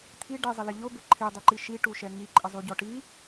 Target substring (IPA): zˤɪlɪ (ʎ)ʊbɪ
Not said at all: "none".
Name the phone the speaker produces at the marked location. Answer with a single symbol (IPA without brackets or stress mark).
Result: ʎ